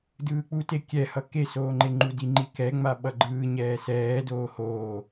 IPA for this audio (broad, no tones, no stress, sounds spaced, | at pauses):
d ɯː k͡p u t e kʲ ɛ h ʌ k e s oː ŋ͡ǃ e ŋ͡ǃ u d i ŋ͡ǃ i k ɛ ŋ͡m a ɓ ʌ ɡ͡ǃ ɯː ɲ ɛː s ɛː d oː h oː